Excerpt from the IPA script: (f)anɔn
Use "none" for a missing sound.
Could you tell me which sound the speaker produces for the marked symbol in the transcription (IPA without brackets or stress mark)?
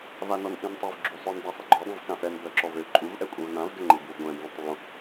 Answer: v